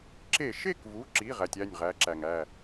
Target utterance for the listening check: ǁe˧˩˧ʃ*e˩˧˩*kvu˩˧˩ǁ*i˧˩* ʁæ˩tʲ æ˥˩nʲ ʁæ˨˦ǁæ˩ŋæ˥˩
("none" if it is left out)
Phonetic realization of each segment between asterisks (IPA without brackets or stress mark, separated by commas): e˥˩, i˩˧˩